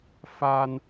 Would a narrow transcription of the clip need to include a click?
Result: no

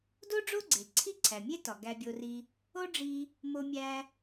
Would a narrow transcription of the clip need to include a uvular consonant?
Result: no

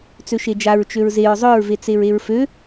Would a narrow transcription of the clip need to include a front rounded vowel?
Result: yes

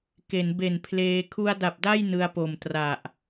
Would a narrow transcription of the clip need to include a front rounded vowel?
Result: no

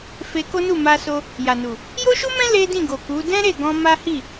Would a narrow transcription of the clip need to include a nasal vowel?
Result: yes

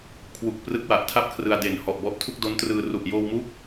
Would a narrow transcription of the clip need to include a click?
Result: no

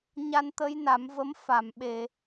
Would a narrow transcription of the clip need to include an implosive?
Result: yes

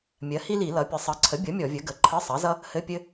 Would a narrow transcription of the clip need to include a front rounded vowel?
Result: no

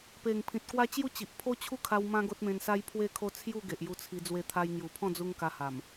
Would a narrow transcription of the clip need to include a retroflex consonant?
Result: no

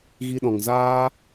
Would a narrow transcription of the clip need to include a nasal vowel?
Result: yes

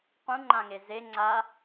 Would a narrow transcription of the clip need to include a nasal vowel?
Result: yes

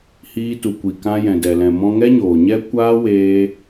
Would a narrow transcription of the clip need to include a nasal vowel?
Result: yes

